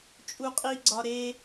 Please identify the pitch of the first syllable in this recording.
high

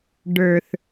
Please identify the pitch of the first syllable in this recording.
low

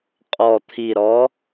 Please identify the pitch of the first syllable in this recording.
low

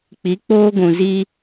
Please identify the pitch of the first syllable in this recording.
rising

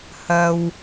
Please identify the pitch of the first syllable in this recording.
low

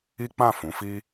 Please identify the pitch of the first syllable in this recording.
high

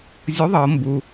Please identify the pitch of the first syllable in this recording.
rising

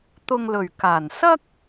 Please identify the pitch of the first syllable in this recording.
low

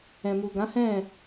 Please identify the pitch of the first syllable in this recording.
low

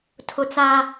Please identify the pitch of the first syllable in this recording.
high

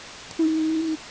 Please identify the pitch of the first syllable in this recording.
high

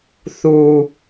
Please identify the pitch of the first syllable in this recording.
low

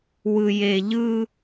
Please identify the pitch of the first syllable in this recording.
low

